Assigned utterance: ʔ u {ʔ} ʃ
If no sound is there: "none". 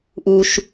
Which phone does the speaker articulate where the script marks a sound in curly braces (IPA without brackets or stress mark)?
none